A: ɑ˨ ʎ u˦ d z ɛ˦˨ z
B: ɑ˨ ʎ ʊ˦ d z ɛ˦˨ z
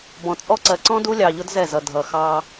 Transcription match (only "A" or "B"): B